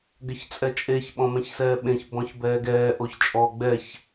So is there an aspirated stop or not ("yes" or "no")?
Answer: no